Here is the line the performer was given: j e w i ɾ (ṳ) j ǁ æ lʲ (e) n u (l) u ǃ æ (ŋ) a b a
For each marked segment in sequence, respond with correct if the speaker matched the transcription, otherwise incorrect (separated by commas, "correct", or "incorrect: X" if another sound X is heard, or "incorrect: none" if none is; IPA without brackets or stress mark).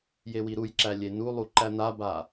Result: incorrect: u, correct, incorrect: lˠ, incorrect: n